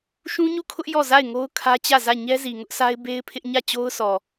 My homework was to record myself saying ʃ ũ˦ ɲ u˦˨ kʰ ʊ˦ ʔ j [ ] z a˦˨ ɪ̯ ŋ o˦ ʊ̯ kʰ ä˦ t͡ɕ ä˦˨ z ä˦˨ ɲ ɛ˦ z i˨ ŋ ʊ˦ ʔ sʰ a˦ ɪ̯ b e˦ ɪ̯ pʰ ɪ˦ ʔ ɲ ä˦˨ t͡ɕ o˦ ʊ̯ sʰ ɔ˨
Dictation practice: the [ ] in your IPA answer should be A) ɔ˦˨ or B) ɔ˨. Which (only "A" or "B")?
A